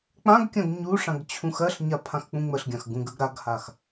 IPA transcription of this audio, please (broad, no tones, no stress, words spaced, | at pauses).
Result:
k͡pãɡkʲãɡ ɲuʂãɡ t͡ɕʰũxɜɬɲa pʰãxk͡pũŋ͡məɬɡʲãx ɡũɡəɡ ɾaɡhax